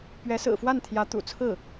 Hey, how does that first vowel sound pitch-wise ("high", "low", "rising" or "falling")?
rising